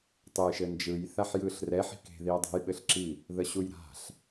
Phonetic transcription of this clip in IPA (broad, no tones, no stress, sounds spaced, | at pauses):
tˤ e j ʃ ɘ n d͡ʒ ɯ j θ a ħ j ɯ ɬ r ɛ ħ i̤ k e̤ ð i ɐ̯ dˤ ɛ̤ j ɓ ɘ ɬ ǁ i | ð ə ɕ u j ɾ a̤ ɬ